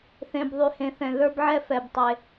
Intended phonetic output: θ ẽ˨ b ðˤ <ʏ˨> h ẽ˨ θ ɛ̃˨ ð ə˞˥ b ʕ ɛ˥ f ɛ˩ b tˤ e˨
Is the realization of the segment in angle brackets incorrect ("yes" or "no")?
yes